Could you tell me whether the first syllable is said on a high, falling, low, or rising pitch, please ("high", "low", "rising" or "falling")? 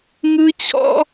high